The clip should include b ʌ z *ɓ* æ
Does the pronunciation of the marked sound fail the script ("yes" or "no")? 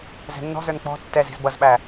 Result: no